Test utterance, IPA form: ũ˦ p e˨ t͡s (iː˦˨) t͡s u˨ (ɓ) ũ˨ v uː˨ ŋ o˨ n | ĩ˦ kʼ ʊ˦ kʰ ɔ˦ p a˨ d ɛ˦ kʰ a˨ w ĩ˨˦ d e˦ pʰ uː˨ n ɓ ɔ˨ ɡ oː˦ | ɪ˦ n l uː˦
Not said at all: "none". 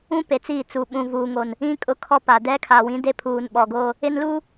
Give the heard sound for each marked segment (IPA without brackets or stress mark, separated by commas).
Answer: iː˦˨, ɓ